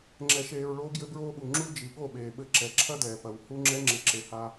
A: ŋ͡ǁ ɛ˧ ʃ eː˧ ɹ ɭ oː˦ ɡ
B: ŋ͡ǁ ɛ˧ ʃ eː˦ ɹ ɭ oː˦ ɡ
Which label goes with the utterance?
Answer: A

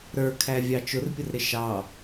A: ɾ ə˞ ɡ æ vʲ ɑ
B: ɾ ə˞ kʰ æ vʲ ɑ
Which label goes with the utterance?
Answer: B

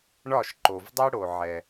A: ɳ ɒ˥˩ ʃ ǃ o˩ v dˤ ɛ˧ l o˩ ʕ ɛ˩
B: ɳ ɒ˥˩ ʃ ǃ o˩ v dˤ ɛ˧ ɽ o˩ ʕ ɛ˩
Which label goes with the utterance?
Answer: B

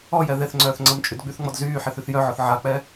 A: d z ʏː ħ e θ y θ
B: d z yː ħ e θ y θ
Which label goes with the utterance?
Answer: B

